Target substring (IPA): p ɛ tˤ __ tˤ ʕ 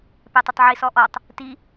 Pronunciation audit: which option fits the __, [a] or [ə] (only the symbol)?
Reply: ə